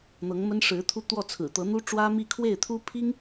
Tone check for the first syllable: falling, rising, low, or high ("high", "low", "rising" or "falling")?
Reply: rising